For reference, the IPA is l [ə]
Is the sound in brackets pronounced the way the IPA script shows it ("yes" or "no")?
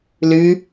no